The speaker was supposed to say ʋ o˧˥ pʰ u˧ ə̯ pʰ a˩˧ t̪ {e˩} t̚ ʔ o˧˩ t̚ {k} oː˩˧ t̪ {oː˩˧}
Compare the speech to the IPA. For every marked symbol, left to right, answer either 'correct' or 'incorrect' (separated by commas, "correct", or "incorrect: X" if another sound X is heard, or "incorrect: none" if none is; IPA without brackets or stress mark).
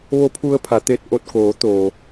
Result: incorrect: e˧, correct, incorrect: oː˩